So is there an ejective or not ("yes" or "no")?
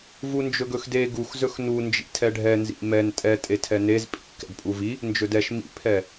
yes